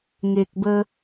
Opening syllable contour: low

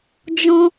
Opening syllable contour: high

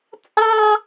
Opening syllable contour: high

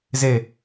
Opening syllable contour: low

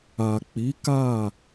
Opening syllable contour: low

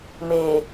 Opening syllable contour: low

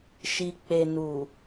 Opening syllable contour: low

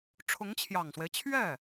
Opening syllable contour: rising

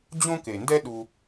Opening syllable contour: high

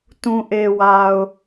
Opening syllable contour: low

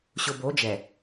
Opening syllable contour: low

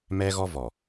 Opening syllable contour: high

